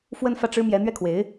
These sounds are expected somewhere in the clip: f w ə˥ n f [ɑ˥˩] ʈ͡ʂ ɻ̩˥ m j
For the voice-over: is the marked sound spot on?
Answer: no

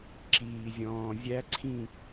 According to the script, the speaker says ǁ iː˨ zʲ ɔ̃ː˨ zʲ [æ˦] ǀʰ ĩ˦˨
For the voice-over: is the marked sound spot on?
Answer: yes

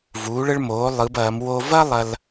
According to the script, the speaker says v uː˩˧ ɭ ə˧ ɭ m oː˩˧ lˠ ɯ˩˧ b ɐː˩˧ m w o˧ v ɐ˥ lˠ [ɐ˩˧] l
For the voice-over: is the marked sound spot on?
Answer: no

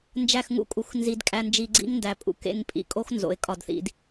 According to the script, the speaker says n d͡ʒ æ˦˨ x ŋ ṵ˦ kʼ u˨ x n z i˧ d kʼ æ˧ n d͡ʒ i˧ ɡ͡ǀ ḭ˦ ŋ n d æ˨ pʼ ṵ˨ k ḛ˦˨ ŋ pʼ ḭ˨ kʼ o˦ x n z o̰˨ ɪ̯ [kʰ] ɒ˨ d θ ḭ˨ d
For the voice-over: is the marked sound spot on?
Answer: no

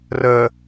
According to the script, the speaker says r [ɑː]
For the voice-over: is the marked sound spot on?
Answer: no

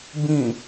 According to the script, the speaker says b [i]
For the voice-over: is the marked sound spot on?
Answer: no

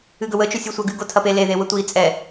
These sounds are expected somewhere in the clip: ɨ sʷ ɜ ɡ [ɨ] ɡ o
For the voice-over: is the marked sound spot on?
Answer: yes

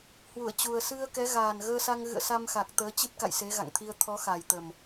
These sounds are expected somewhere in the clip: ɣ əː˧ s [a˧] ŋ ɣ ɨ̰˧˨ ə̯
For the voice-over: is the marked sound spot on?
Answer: yes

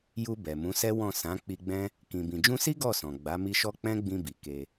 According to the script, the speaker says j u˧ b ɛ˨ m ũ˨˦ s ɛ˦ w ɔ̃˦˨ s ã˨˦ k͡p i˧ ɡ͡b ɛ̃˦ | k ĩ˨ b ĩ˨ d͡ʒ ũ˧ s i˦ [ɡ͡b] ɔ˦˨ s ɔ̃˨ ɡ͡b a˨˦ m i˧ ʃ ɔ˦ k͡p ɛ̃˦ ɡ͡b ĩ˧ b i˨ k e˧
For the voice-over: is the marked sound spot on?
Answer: no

